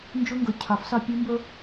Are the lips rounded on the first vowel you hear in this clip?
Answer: yes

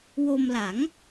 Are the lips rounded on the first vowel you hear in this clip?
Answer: yes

